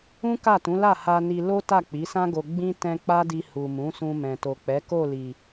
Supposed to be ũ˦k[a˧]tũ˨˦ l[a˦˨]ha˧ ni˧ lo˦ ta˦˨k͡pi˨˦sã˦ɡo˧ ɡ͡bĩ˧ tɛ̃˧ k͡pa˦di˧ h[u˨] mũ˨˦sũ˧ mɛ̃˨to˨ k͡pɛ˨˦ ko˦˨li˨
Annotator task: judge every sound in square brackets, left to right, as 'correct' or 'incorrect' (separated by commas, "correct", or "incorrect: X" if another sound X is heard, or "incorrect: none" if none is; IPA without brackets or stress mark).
incorrect: a˦˨, correct, correct